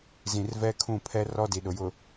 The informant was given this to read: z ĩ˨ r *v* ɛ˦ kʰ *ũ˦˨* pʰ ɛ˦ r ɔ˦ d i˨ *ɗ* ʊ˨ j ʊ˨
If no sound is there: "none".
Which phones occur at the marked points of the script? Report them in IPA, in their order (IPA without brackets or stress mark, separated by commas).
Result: v, ũ˦˨, ɗ